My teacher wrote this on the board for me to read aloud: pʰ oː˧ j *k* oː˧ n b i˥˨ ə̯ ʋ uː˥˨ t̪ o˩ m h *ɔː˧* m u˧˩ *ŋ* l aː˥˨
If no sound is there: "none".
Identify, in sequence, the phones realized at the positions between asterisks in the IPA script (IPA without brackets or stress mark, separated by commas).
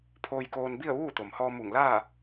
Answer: k, ɔː˧, ŋ